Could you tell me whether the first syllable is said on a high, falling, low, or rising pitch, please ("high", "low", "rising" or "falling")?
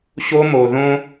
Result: high